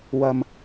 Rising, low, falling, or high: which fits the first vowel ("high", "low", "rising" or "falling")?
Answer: low